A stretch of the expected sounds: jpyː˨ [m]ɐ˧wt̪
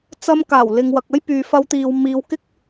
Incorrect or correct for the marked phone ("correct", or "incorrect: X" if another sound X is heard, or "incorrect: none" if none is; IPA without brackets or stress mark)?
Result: incorrect: f